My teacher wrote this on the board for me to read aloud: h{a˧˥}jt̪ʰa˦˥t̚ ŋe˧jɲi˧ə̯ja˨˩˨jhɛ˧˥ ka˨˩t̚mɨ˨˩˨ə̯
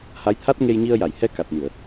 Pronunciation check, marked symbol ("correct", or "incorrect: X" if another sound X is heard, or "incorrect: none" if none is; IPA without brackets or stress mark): correct